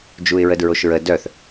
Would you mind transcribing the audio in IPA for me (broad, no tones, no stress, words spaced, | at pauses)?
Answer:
d͡ʒuɪ̯ɹədɹoʃɹə dœθ